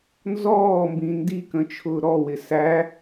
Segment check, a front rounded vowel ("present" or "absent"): absent